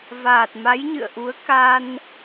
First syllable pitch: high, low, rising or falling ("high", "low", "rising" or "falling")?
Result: low